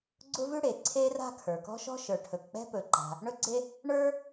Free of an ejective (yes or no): yes